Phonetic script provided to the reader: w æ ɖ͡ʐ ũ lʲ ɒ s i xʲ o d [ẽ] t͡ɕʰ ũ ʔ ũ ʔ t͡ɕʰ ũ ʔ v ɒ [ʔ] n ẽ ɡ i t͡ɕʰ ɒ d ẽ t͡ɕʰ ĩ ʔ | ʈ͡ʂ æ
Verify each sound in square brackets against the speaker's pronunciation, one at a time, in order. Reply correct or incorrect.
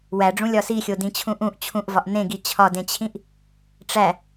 incorrect, correct

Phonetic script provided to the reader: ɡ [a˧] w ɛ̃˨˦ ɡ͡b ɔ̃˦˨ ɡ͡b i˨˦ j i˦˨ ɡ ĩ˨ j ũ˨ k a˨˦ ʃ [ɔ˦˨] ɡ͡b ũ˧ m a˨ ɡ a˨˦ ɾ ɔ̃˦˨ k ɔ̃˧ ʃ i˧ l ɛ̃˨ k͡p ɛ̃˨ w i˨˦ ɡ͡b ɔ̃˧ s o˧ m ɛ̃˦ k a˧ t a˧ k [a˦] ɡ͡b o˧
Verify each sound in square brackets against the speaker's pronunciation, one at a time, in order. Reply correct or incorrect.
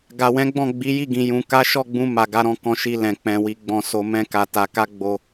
incorrect, correct, correct

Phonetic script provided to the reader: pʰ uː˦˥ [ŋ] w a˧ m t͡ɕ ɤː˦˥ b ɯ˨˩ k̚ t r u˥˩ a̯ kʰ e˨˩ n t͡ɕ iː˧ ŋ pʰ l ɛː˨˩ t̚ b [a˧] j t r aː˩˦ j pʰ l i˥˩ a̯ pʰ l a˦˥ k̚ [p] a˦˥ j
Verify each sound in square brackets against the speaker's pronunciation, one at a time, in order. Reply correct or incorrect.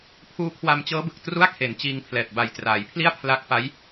incorrect, incorrect, correct

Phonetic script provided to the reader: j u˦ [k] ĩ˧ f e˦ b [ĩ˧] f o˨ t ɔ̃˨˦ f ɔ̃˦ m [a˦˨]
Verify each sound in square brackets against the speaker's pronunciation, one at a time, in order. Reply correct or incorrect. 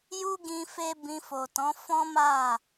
incorrect, correct, correct

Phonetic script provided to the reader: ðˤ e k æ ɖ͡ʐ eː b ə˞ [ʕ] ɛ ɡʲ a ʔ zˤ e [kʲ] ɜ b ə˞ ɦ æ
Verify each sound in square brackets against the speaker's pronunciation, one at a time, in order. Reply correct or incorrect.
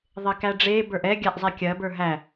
incorrect, correct

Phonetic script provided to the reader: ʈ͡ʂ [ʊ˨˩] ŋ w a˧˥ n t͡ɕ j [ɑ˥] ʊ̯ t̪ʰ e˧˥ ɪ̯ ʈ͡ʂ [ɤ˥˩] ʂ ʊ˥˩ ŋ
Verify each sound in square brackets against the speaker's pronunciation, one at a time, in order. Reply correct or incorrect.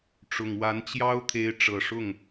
correct, correct, incorrect

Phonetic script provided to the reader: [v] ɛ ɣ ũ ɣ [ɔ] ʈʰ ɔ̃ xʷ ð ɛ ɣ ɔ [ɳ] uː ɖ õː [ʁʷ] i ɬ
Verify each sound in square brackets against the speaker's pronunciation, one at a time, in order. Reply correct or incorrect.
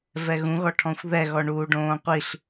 correct, correct, correct, incorrect

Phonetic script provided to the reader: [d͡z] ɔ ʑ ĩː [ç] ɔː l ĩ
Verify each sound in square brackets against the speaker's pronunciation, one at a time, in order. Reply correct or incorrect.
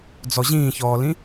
correct, correct

